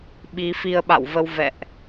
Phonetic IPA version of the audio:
ɓi˨˦fi˧ə̯ɓa̰˧˨wvə˧w vɛ̰˧˨ʔ

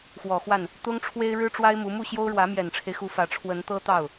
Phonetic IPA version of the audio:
xwɔ˨˩xwa˥˩n | t̪ʊ˥ŋʈ͡ʂʰwe˥ɪ̯ɻɻ̩˥ʈ͡ʂwa˥ɪ̯ mu˧˥ mu˥˩ɕjo˥ʊ̯ɻwä˧˥ mjɛ˨˩nʈ͡ʂʰe˦ɪ̯xu˧˥ fä˧˥ ʈ͡ʂʰwə˧˥nt̪ɤ˥t̪ɑ˥˩ʊ̯

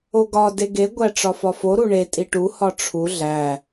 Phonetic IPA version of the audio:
oɡɒ deɡe ɡʷæʈ͡ʂɒfɒfo ɾuɳe tʼiʈu hɒʈ͡ʂʰu ɮæ

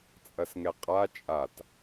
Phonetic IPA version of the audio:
t͡sʼɐsŋɛqʼa t͡ʃʼat

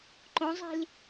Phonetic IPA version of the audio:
ǃõzˤi̤l

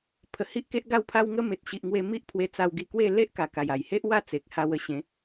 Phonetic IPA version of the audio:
pʰə˨˩hi˦ʔke˦ʔ ɡa˧wpʰa˧wŋə˧ me˨t̚ɕi˨ʔŋwe˧ mi˦ʔpʰwe˧ t͡sa˧wɡi˧kwe˥˧ le˦ʔka˨˩ ka˨˩ja˨˩jhe˦ʔ wa˥˧t͡se˨k̚ ha˧wə˧ɕẽ˨˦

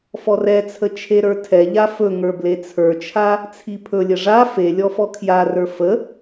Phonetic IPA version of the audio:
fɔrɛt͡sʰə t͡ʃʰeɾə˞tʰɛʎa fɵŋə˞ blet͡sʰə˞t͡ʃʰa | t͡sʰipʰɵlʲə ʐa fe lʲɔfɔkʰjarə˞ fə

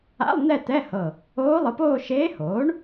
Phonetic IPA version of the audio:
a̰˧˥˧lˠ n̪ɛ˥˧ t̪ɛ˧˥˧hɤ˧˩ | oː˧˥lˠɯ˩˥poː˥˧ ʃeː˧˥hoː˩˥ɳ

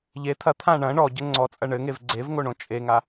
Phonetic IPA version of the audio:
ʎe t̪ʰɐt̪ʰã ɳɐ̃ ɳɔɟɘ ŋ͡ǀɔt͡sʼɐ ɳɘŋev ɡ͡ǀevŋoɳõ t͡ʃʼeŋa

